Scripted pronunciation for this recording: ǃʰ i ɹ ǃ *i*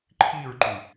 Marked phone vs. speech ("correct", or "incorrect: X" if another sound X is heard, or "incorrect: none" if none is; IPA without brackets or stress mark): incorrect: y